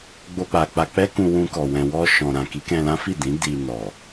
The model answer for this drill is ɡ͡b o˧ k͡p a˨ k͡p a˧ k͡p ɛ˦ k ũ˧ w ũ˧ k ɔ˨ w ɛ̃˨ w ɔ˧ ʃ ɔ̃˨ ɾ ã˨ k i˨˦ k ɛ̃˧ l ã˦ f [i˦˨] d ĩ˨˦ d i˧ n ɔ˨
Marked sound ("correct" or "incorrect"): correct